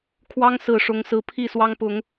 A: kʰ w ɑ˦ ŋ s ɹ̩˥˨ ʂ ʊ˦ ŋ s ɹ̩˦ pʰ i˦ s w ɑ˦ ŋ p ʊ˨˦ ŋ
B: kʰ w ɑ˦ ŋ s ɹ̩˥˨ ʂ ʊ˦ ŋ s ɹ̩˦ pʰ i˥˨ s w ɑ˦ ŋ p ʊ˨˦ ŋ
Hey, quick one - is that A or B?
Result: B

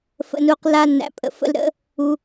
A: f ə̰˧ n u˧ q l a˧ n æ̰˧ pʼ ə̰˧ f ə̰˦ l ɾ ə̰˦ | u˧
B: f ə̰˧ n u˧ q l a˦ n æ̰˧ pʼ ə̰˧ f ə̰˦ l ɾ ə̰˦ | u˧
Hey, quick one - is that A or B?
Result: B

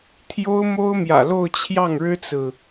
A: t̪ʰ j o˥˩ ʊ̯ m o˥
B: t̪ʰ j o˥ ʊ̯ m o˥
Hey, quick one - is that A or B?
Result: B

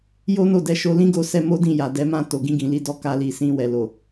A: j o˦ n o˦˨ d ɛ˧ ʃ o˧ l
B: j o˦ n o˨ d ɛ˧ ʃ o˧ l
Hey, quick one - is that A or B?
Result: A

